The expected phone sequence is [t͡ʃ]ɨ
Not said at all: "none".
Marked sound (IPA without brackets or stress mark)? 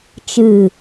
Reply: t͡ʃ